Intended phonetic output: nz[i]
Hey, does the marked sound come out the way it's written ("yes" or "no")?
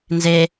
no